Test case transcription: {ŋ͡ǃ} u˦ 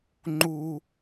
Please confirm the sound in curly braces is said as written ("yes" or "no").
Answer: yes